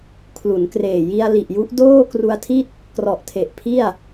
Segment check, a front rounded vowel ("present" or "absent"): absent